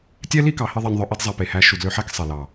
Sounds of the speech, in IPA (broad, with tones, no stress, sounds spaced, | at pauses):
tʲ ɛ˦ l i˦ k ɑ˨ h i˦ ðˤ ɛ˧ nʲ ðˤ œ˧ ʔ i˦ d zˤ æ˧ p e˨ h æ˧ ʃ u˨ d l ø˧ ħ æ˦ k sˤ ɛ˨ l ɑ˨